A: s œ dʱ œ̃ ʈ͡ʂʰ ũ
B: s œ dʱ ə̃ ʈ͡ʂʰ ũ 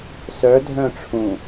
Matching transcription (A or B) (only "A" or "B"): A